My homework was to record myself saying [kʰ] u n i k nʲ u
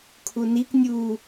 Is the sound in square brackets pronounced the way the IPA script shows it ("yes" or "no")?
yes